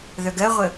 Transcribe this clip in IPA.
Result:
ð œ ɡ ɜ ʁʷ ə

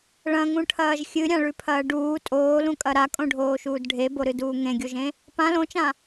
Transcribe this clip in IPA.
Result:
ɭ ɐ̃ ŋ ũ ʈʰ ɐː ʒ xʲ ɨ ɾʲ ã ɭ ʉ pʰ ɐː ɖ uː tʼ oː l ũ kʼ ɐ ɾ a kʼ õ ɖʱ oː ʃ uː d ɖʱ e b o ɾ ɨ d uː ŋ ẽ ɡʲ o ʒ ẽ | p ã l õ t͡ʃ ã

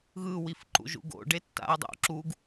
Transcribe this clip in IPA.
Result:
ɣ ɯ w i f ǃ ṵ ʒ ṵ ɡ o̰ ɖ e tː a̰ ɐ̯ dˤ o̰ ǁ u ɡ

